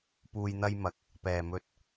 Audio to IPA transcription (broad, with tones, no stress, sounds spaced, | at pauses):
p uː˧ j n̪ ɐ˥ j m ɐ˨˥ k̚ | p ɛː˨˩ m ɵ˧ t̚